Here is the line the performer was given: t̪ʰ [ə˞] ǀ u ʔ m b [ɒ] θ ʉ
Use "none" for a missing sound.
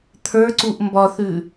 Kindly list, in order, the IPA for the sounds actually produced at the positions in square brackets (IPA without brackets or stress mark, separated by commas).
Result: ə˞, ɒ